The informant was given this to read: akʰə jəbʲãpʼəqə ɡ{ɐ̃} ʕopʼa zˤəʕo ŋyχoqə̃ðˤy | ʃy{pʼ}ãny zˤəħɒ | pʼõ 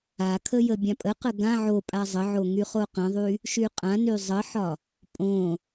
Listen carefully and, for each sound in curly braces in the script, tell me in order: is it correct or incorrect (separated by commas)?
incorrect, incorrect